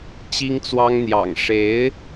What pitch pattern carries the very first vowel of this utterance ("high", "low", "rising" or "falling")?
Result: high